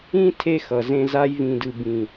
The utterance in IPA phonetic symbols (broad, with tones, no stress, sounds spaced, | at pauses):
ĩ˦ tʰ e˦ x ʌ˨ z ẽ˧ z a˧ j v ĩ˨ d ɯ˨ b ĩ˨